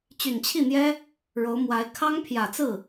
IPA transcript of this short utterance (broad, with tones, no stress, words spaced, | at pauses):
t͡ɕy˨˩nt͡ɕʰi˥˩n̪jɛ˥ | ɻo˧˥ʊ̯mwa˧˥ɪ̯ kʰɑ˥ŋpʰjä˨˩t͡sɹ̩˥˩